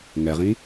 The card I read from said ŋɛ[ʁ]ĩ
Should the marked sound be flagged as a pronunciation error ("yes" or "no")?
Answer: no